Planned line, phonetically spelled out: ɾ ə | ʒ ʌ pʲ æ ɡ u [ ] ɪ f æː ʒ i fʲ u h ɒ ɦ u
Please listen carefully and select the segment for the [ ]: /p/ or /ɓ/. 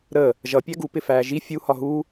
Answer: p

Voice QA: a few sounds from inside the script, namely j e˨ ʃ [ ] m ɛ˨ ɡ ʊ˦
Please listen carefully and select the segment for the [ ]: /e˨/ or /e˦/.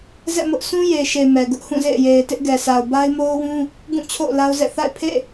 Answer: e˨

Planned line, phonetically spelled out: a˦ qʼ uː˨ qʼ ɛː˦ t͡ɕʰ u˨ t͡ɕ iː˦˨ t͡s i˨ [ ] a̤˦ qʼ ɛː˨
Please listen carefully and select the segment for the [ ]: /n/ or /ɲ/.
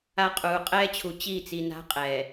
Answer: n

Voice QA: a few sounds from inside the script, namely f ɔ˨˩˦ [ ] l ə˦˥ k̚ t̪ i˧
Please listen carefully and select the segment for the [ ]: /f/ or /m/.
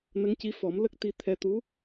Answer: m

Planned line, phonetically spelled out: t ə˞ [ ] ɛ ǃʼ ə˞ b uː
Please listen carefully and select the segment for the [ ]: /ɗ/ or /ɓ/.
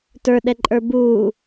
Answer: ɗ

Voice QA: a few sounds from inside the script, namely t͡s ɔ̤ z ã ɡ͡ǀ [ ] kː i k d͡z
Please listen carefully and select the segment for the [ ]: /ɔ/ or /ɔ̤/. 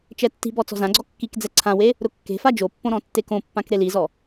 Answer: ɔ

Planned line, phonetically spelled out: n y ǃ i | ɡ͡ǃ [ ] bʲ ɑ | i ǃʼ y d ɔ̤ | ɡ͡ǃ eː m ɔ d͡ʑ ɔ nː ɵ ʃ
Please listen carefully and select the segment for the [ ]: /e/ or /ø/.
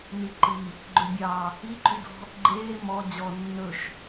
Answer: ø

